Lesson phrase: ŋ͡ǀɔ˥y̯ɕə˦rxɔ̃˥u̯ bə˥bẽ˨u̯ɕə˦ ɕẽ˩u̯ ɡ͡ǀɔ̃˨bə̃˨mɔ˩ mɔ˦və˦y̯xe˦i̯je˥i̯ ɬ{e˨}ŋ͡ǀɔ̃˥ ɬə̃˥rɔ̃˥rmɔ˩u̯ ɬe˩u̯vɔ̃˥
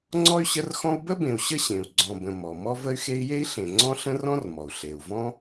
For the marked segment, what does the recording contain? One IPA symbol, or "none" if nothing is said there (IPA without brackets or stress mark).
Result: ẽ˨